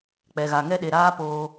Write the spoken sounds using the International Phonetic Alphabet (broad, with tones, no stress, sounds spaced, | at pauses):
k͡p ɛ˨ ɣ a˨ ŋ ɛ˦ ɗ e˨ ɾ aː˦ p oː˧